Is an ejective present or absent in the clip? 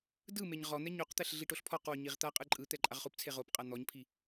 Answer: present